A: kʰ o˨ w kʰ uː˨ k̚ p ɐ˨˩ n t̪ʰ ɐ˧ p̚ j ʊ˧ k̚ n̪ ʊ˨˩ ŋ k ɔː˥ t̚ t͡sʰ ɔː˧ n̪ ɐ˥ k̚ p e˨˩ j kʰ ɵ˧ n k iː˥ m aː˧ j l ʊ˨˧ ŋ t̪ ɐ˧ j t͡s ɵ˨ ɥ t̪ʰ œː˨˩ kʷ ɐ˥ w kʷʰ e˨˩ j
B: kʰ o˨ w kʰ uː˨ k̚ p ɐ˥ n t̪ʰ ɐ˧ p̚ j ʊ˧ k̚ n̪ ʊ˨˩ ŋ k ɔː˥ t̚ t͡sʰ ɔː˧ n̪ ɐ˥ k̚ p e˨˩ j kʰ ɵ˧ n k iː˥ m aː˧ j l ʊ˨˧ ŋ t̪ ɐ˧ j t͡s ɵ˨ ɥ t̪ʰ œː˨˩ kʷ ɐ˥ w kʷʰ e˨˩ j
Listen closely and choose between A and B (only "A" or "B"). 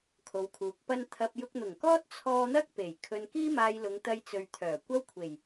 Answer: B